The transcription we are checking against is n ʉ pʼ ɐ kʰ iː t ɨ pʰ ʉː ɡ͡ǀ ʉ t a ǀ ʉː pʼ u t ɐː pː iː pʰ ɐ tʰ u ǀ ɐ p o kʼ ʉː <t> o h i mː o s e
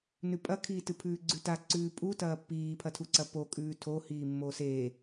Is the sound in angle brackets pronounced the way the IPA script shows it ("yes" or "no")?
no